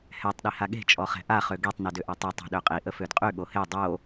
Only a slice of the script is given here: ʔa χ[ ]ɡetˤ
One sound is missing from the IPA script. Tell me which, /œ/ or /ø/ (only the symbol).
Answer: ø